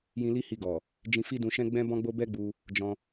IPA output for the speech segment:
j ĩ˧ l i˦ h i˧ ɡ ɔ˨ | d͡ʒ ĩ˧ f i˦ d ũ˧ ʃ ɛ̃˦ ɡ͡b ɛ̃˦ b ɔ̃˦ ɡ͡b o˦ b ɛ˦ ɡ͡b u˧ | d͡ʒ ɔ̃˧

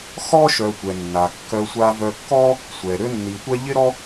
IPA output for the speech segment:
x ɔ˥ ʃ œ˧ tʷ ɛ˩ nː a˩ kː œ˧ sʷ a˧ v œ˧ kː ɔ˥ | sʷ ɛ˩ ɾ ø˥ nː i˩ tʷ ɛ˥ ʎ ɪ˥ ɾ ɔ˥

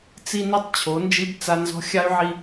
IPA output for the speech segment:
t͡s i˦ n i˦ tˤ t͡ɕʰ o˨˦ n d͡ʒ i˦ b t͡s a˦ n z ɔ̤˦ xʲ a˦ y̯ ʕ i˦

